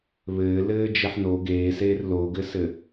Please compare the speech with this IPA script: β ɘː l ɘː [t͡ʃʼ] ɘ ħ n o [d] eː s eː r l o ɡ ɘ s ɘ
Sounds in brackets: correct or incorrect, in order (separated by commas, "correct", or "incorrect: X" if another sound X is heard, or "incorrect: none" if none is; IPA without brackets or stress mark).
incorrect: d͡ʒ, incorrect: ɡ